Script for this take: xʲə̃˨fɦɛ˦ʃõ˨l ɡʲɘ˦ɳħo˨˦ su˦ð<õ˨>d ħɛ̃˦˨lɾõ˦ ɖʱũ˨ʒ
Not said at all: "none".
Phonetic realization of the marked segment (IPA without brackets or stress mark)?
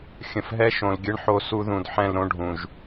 ũ˨